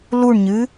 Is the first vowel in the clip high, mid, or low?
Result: high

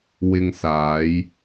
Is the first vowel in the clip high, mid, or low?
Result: high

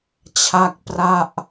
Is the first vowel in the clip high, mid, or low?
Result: low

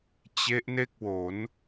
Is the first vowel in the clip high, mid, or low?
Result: mid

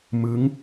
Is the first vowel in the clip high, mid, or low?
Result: high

